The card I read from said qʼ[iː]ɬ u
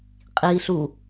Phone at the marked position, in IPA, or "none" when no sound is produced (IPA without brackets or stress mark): iː